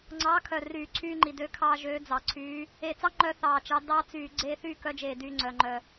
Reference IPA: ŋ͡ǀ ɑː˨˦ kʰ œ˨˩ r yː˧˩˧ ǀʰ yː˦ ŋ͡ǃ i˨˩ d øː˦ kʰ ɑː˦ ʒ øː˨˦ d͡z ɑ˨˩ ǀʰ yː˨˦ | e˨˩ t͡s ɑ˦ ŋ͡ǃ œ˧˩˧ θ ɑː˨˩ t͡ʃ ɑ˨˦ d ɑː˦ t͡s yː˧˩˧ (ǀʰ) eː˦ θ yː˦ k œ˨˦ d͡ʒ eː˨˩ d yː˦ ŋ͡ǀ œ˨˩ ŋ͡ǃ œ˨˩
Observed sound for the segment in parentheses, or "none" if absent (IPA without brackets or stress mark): ɡ͡ǀ